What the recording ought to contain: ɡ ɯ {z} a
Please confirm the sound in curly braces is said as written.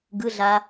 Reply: no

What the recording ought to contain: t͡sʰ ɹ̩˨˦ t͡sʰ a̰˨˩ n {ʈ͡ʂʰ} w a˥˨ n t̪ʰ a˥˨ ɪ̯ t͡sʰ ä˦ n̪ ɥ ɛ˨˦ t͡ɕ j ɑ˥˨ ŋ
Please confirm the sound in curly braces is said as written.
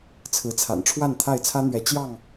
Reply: yes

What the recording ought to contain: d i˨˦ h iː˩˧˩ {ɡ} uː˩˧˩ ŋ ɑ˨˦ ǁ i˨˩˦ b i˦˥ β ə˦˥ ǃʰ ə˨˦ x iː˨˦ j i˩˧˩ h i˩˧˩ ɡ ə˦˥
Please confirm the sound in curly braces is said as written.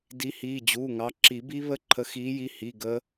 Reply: no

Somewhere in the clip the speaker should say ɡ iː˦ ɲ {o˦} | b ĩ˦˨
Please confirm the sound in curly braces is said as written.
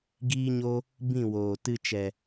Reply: yes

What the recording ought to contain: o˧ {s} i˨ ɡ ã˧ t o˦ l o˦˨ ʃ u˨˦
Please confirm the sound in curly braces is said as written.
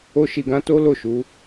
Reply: no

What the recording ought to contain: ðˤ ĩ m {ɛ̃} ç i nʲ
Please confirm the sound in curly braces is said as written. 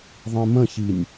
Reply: no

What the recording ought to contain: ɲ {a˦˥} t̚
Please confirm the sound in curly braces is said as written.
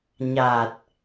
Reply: no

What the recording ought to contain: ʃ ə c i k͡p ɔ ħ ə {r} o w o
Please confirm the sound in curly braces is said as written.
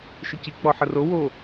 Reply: yes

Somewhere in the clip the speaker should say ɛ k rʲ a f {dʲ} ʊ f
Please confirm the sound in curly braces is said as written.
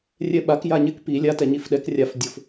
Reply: yes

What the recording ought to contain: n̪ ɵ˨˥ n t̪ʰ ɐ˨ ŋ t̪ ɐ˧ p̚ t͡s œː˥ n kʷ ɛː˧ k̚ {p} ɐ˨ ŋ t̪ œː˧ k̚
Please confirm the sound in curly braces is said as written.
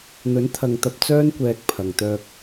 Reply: no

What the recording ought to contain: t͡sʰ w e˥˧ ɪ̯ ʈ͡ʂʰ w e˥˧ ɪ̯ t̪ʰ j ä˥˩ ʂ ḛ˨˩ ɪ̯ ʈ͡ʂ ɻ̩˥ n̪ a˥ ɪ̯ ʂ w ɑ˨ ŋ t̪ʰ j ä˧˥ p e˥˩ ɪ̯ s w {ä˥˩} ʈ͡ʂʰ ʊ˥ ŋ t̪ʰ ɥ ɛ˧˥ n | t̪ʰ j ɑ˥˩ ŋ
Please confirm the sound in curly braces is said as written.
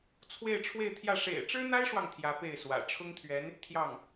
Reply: no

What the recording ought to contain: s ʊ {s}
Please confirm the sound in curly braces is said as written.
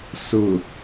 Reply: no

